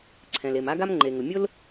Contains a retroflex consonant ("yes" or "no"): no